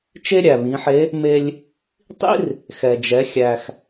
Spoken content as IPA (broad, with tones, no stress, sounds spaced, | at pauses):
t͡ʃ e˥ ɾʲ æ˩ β ĩ˩˧ ħ e˧˥ | m e˧ lʲ | tˤ ḭ˥ r | x ɛ˩ d͡ʒ ɛ˩˧ xʲ æ˩ x